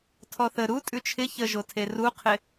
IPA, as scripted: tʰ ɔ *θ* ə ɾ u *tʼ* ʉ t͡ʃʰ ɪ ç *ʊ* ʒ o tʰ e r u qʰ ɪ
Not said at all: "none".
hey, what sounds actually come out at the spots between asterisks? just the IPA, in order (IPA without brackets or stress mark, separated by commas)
θ, tʼ, ə